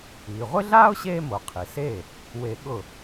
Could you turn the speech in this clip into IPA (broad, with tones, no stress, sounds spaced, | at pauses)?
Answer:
iː˩ ʁʷ ɪ˥ ɮ aː˥ ʊ̯ ɕ eː˥ m o˩ qʰ i˩ s eː˥˩ | w e˧ ɠ ʊ˥˩